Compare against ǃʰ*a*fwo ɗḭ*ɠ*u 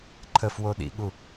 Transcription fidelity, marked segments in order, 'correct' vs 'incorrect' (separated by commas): incorrect, correct